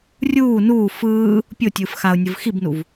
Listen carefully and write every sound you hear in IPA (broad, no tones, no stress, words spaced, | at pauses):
rʲuː nuː fɯː | pʲotʲɯːf xaʊ̯nʲɯv xibnuv